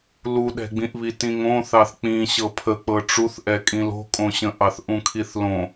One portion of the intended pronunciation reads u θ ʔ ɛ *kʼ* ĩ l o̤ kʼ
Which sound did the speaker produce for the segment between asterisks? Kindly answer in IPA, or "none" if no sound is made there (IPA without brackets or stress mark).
kʼ